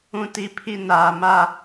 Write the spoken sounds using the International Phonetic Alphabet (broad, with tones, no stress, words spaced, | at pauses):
ũ˦˨ti˦˨pʰi˦ naː˨ma˦